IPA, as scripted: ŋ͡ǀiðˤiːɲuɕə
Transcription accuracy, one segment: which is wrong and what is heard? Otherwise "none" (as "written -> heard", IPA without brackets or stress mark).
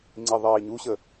none